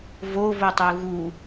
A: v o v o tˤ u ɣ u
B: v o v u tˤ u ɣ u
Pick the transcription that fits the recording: A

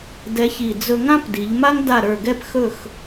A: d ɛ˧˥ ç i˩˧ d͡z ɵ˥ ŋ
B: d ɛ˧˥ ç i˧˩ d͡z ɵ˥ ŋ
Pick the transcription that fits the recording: B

